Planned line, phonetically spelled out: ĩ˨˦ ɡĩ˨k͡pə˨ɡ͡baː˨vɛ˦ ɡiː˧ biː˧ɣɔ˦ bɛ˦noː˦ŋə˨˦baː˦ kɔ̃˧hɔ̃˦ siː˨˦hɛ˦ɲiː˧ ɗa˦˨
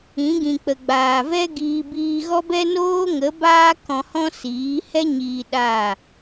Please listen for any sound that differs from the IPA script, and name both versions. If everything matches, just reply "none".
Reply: none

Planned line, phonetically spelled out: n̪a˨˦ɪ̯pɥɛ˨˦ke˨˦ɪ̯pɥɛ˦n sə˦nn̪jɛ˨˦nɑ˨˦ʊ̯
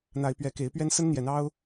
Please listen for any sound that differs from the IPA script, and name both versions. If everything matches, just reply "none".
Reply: ɑ˨˦ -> ɑ˦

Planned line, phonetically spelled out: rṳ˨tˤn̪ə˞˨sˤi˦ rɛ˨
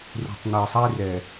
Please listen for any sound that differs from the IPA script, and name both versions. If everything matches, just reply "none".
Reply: none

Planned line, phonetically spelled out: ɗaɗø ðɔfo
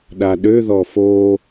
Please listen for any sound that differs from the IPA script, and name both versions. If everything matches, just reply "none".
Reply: none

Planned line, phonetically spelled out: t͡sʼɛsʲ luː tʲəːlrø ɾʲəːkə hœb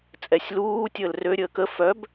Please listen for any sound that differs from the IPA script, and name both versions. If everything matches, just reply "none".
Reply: h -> f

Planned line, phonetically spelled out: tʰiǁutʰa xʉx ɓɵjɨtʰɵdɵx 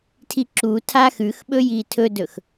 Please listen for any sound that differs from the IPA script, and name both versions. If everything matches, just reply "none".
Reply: ɨ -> i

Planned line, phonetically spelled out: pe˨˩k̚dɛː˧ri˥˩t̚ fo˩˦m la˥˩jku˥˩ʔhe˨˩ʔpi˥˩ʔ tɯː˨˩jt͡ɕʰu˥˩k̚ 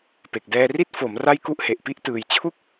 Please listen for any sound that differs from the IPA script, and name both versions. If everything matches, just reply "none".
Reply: l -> r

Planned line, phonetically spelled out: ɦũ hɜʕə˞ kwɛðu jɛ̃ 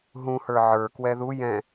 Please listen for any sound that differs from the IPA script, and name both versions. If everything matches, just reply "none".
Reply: ɜ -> ə˞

